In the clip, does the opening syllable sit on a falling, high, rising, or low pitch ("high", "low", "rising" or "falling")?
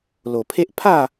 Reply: low